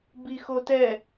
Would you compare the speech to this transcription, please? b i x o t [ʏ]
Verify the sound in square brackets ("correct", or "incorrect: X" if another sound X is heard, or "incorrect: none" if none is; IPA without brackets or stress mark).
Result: incorrect: ɛ